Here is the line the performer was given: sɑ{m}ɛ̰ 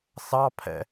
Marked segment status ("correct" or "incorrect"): incorrect